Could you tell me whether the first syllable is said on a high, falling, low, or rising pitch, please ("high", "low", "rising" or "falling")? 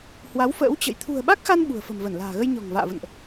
rising